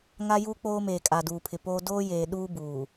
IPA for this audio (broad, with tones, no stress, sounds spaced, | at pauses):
ŋ a˦ j uː˦ k͡p oː˦ m eː˨ kʼ a˨ d uː˨ pʰ ɪ˨ p oː˦ d oː˦ j eː˨ ɗ uː˦ b uː˨